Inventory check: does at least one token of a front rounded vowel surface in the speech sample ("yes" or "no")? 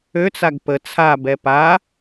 yes